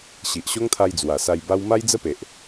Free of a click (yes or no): yes